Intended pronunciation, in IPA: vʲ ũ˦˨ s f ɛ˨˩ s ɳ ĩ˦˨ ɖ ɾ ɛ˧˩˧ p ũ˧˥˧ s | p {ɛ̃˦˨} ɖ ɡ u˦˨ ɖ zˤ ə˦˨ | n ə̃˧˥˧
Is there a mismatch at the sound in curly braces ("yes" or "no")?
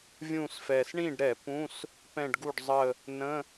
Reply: no